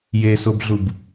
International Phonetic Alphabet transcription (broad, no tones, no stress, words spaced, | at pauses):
jesobɮub